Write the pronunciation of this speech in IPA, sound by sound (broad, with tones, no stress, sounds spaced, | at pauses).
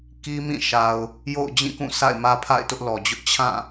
k i˦ m ĩ˦˨ ʃ a˨ ʊ̯ | j o̰˦˨ ʊ̯ d͡ʑ ĩ˦˨ k ũ˦˨ sʰ a̰˦˨ ɪ̯ m ä˦ pʰ a̰˦˨ ɪ̯ t ʊ˦ ʔ l ɔ˨ d͡ʑ ʊ˦ ʔ t͡ɕʰ ã˦˨